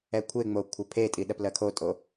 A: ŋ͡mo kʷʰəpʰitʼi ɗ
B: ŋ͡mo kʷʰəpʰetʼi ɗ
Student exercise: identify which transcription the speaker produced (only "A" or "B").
B